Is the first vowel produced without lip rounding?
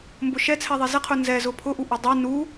no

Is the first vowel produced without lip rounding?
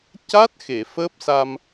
yes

